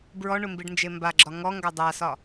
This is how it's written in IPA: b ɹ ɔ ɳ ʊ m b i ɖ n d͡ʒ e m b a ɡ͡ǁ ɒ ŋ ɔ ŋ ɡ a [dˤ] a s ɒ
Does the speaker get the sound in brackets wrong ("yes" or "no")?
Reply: no